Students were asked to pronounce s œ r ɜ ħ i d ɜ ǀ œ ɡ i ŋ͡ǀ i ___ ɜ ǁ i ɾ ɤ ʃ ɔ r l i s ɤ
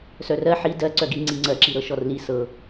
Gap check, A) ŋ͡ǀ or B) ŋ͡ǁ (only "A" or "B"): A